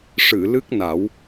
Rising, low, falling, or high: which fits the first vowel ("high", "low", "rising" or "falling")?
low